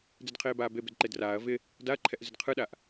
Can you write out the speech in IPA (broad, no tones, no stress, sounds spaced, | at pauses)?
d e d qʰ eː b aː b e b ɪ d ǃ e d r aː ɐ̯ v ɪ | d a ɐ̯ ǃʰ ɛ ʔ z ɪ d qʰ ɯ ɗ a ʔ